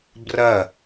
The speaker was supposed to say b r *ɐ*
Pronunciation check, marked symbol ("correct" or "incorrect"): correct